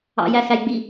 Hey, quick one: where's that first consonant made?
palate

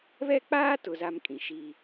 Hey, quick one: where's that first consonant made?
lips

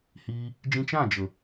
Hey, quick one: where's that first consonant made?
throat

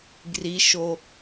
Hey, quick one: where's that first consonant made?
velum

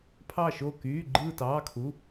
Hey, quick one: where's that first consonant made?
lips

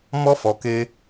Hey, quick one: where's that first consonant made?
lips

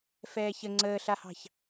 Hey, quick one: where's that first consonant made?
lips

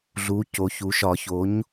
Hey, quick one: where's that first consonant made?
tongue tip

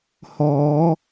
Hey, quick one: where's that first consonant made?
throat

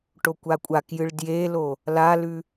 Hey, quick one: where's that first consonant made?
retroflex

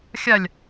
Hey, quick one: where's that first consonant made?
velum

